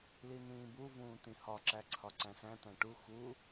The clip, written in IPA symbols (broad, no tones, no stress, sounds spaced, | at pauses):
l i n̪ ĩː b u v ũː t̪ ĩ h ɒ ǁ æ ǀʰ ɒ ǀ æ̃ s æ̃ t̪ æ̃ ʈ u x u